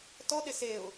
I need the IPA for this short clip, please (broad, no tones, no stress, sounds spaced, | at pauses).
t ɔ ɗ ɪ s e ʊ̯